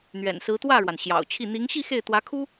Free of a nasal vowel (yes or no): yes